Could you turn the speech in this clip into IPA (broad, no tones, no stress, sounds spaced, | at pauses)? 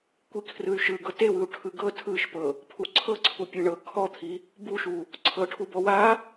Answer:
kʷ i kʰ r ɯ y̯ ʃ ɯ ɡ ɤ t e w ɯ u̯ ʈʰ ɯ ɡ ɤ tʰ ɯ ʃ p ɤ | pʰ u ǀʰ ɤ ǀʰ u pʲ e ɳ ɤ kʰ ɔ t̪ʰ i | b u ʃ u | ǀʰ ɤ ʈʰ u b ɔ w a